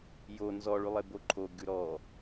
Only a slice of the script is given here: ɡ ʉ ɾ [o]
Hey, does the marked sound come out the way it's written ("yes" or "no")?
no